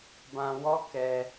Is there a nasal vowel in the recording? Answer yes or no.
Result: yes